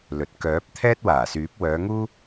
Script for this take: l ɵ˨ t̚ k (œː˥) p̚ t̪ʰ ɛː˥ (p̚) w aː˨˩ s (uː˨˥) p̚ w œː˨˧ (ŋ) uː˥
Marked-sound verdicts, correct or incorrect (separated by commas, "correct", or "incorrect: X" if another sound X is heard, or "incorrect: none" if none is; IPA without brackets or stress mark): incorrect: œː˨˥, incorrect: t̚, incorrect: yː˨˥, correct